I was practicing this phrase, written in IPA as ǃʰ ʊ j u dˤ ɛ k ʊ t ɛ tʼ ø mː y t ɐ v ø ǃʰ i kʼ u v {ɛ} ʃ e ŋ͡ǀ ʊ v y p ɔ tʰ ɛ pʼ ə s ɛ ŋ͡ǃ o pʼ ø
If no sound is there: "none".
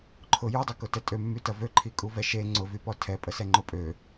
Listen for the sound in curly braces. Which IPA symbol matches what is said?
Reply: ɛ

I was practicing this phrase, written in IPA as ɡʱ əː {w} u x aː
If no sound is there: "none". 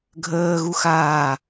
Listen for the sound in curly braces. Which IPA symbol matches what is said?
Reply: ɣ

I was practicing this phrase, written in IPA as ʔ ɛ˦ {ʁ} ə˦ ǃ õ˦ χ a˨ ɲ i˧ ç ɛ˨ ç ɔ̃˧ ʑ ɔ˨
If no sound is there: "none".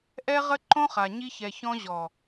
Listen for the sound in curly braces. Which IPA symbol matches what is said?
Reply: ʁ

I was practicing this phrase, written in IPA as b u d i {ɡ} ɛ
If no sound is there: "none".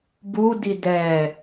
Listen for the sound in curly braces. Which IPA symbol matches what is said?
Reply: d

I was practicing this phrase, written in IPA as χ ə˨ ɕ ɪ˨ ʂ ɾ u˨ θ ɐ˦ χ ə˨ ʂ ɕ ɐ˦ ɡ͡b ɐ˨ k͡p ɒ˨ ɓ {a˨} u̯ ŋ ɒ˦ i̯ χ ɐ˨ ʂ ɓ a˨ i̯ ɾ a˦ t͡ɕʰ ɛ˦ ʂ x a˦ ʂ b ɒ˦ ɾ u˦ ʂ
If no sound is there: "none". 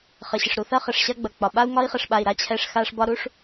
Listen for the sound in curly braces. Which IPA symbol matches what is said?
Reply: a˦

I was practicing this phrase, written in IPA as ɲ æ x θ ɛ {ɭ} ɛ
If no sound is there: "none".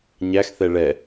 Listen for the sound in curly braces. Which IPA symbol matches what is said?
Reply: ɭ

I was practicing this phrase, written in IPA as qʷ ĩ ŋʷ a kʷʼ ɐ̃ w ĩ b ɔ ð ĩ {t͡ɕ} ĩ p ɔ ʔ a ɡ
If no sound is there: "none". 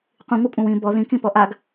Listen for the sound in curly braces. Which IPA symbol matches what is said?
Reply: k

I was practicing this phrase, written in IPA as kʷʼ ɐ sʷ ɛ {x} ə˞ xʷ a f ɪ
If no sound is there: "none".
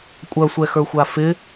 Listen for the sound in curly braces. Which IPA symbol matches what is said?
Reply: x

